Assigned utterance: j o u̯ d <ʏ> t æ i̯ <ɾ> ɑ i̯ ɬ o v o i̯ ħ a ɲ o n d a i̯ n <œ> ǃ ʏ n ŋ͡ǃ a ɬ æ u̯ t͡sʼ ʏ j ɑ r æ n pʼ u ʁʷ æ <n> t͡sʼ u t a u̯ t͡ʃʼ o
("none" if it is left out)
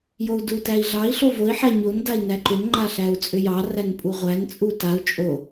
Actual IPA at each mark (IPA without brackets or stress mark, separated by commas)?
u, ɮ, æ, n